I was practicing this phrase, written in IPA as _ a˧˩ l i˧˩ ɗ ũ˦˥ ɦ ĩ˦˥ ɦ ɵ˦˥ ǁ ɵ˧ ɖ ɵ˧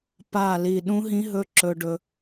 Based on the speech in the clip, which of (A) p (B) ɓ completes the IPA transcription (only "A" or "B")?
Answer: A